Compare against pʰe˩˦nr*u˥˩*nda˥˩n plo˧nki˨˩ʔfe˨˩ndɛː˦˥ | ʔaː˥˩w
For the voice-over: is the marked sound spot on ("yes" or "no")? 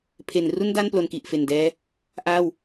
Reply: yes